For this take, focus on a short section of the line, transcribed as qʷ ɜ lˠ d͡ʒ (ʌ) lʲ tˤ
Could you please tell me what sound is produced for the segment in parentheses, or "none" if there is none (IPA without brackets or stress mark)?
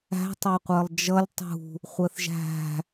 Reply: ʌ